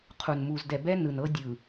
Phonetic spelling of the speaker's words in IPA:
qʰ u˨ n m u˨ z d ɛ˨ b ɛ˦ n ɯ˨ n ɤ˦ dʲ ɯ˨

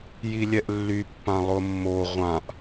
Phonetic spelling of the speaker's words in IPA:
j i lʲ ɛ ʔ lː y pː ã lˠ ʊ mː o ʁʷ ã ʔ

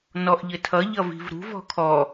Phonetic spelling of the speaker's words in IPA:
n ɔ ʔ ʎ ɘ tʰ ʌ ʎ ʌ v i̤ v ɾ ṳ v ɔ̤ kʰ ɔ

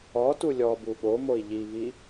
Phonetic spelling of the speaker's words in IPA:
ɔ t u lʲ ɔ b u ɠ o m o i̯ ʎ i v i

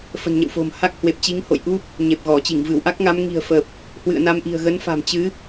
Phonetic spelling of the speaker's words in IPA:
f ə̤˨˩ n ɲ ə̰˧˨ w f o̤˨˩ m h a˦˥ k̚ h w e˨˩ p̚ t͡ɕ i˨˦ ŋ h o̰˧˨ j ʔ u˦˥ p̚ | ɲ e˨˩ p̚ ɣ ɔ˧˩ t͡ɕ i˧˩ ŋ v ɨ˧˩ w ʔ a˦˥ k̚ ŋ a˨˦ m ŋ i̤˨˩ ə̯ f ə˨˩ p̚ | h w ɨ̰˧˨ ə̯ n a˧ m ʔ i̤˨˩ ə̯ ɣ ə˨˦ n f a̤˨˩ m t͡ɕ ɨ˨˦

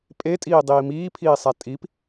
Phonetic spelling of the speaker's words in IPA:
pʼ e tʼ iː dˤ iː m iː pʰ iː sˤ æ tʼ i p

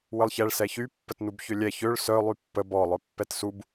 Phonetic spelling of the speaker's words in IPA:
w ə lˠ ç ɛ ɭ s ɛ ç y pː ə t n u b ç ø lʲ ɛ ç ø ɭ s œ lˠ y pː ə b ɔ lˠ œ pː ɛ t s u b

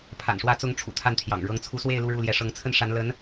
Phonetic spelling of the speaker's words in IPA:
pʰ a̰˨˩ n ʂ w ä˧˥ t͡s ʊ˧˥ ŋ ʈ͡ʂʰ ṵ˨˩ t̪ʰ a˥˩ n t̪ʰ j ɑ̰˨˩ ŋ ɻ ɤ˧˥ ŋ t͡sʰ u˧˥ s w e˥˧ ɪ̯ l u˥˧ ɻ u˥˩ l j ɛ˧˥ ʂ ɤ˧˥ ŋ t͡sʰ ə˥ n ʂ a˧˥ n l ə˧˥ n

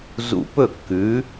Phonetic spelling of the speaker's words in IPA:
z ṵ˧ p ɵ˥˩ kː ʉ˩˥

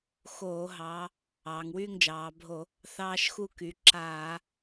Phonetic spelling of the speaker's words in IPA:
x oː˧˩˧ ɦ ɑ˩˧ | ɑː˩˧ ŋ w yː˥˨ ŋ d͡ʒ ɑː˩˧ bʱ o˧˩˧ | θ ɑː˦ ʃ x u˥˨ k y˩˧ ǁ aː˧˩˧

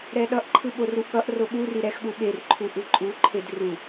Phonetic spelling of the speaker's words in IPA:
ɾ ɛ ɗ ʌ ʔ ǃʰ ɯ ɓ o r u ʔ ɠ ʌ ʔ r o ɓ u r i ɾ ɛ x ɠ u ɓ e r ǃʰ u ʔ ɯ ǃʼ u ǃʰ e d r u

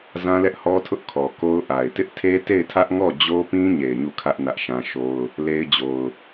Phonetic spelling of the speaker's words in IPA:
z ã˦ l ɛ˦ ʔ h ɔ˦ tʰ ʊ˦ ʔ kʰ ɔ˨ k o˦ ʊ̯ ʔ a˨ ɪ̯ t ɪ˦ ʔ tʰ e˦ t e˦˨ ɪ̯ tʰ ä˦ ʔ ŋ ɔ˦˨ d͡ʑ o˦ p ĩ˦ ɲ e˨ ɪ̯ ɲ u˦˨ kʰ ä˦ ʔ n ä˦ ʔ ʃ ã˦ ʃ o˦ ʊ̯ | l e˦ ɪ̯ d͡ʑ o˨ ʊ̯

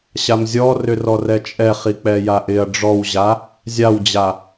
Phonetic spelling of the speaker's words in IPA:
ɕ a m zʲ ɔ r ʏ r ɔ r ɛ t͡ʃʼ ɛ χ i k͡p ɛ j a ʔ ɪ ɐ̯ ɖ͡ʐ ɔ w ʑ a | zʲ a w d͡ʑ a

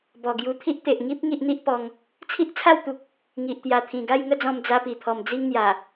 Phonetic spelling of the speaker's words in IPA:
b ɔ˨˩ ɡ j u˧ t̪ʰ i˦ ʔ t̪ e˨ ʔ ŋ i˦ p̚ ŋ i˦ ʔ n̪ i˦ ʔ p ɔ˧ ŋ | t͡sʰ i˦ ʔ t͡sʰ a˥˧ w t̪ u˨ k̚ | ŋ i˨ ʔ t̪ j a˨˩ t̪ʰ ĩ˨˩ ɡ a˥˧ j ŋ ə˥˧ d͡z ɔ̃˧ m d͡z a˧ p i˨˩ t̪ʰ ɔ˨˩ m d͡z i˦ ŋ n̪ j a˨˩

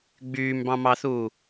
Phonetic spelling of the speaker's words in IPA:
ɡ͡b yː m b ɑ̃ m ɑ θ uː

